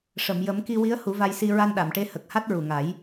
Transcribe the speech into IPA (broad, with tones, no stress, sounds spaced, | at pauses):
ʂ ə˨˩˨ m j ə˨˩˦ m k i˧ w i˧˥ ə̯ h u˨˩˦ v a˧ j s i˧ ɹ a˧ n ɗ a˨˩˨ m ʈ e˧˥ h ə˨˩ k̚ h a˦˥ t̚ ɹ u˨˩ ŋ a˨˩˦ j